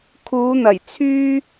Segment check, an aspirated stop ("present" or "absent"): present